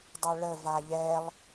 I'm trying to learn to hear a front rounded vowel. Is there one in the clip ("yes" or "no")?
no